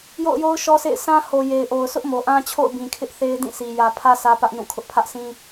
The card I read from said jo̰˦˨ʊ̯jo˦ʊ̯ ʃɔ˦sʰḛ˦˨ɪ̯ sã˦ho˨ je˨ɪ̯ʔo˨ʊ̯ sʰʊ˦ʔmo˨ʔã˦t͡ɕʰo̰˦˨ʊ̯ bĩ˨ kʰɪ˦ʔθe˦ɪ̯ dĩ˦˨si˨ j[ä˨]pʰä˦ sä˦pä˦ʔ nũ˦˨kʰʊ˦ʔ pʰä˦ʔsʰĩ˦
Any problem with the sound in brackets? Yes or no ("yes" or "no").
no